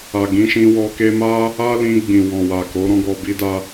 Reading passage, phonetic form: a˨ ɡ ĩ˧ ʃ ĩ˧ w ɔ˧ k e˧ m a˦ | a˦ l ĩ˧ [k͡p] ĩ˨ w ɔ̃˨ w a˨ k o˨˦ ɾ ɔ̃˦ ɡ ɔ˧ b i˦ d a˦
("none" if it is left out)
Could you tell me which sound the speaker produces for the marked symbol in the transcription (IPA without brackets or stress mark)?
ɡ͡b